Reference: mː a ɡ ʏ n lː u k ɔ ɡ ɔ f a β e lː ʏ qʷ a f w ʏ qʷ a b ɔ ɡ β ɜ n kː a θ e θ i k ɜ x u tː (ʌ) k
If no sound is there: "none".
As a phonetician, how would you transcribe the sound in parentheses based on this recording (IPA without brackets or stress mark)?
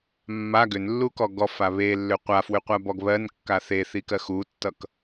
ʌ